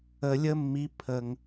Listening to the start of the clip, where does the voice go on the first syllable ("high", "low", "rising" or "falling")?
low